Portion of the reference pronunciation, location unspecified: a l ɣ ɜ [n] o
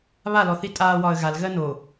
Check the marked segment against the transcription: correct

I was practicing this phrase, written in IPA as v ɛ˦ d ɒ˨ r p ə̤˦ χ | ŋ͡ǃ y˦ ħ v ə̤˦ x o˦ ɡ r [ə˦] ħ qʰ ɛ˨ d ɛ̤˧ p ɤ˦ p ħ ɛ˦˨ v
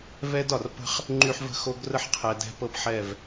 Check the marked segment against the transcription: correct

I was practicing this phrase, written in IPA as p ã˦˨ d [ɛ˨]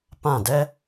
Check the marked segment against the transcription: incorrect: ɛ˦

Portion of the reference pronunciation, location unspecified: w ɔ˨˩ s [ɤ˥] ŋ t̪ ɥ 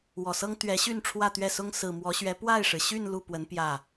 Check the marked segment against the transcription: correct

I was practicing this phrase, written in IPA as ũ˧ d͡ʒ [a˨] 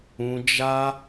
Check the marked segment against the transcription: incorrect: a˦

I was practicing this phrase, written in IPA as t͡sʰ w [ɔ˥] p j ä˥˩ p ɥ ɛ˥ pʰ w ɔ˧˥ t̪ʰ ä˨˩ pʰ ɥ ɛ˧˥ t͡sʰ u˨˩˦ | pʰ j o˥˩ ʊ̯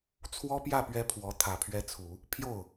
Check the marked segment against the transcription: correct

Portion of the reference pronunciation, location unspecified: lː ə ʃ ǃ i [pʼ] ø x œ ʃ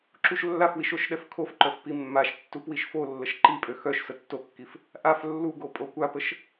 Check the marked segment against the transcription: correct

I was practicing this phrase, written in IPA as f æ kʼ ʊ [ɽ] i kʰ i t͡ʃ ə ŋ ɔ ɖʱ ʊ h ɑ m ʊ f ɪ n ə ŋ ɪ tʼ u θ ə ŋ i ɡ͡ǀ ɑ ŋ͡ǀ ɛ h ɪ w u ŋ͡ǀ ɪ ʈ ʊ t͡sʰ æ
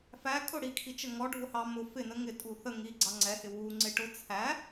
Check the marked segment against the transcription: correct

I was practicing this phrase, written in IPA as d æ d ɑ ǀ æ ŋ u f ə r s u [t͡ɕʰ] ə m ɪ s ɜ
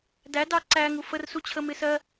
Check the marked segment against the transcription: correct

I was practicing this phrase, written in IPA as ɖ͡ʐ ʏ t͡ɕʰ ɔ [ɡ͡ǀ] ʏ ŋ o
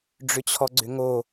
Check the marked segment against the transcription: correct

